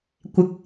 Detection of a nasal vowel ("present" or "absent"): absent